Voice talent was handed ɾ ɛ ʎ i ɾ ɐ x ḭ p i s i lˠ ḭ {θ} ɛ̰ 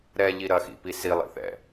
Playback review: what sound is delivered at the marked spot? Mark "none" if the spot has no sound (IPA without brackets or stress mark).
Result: θ